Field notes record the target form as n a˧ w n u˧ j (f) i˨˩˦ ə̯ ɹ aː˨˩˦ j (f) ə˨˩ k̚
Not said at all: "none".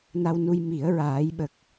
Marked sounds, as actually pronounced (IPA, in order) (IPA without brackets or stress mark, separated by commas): m, ɓ